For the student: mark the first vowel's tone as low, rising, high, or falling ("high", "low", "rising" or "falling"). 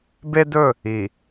high